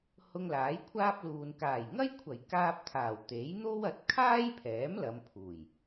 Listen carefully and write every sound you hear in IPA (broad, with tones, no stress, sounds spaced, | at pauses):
h ʊ˧ ŋ l aː˨˥ j kʷʰ aː˥ p̚ l uː˨ n k aː˨˩ j ŋ ɐ˥ j kʷʰ ɐ˨˩ j k aː˧ p̚ t̪ʰ aː˨˩ w t̪ e˨˥ j n̪ o˥ w ɐ˨˥ t̚ kʰ aː˥ j pʰ ɛː˨˥ m l ɐ˨˧ m pʰ uː˨˩ j